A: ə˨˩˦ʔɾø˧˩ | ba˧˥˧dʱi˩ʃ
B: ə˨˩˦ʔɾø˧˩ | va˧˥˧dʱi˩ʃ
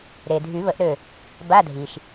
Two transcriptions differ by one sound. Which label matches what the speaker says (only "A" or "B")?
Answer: A